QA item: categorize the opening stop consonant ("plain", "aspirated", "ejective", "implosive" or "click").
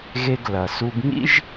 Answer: plain